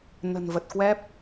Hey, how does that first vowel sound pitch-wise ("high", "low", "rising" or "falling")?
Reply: low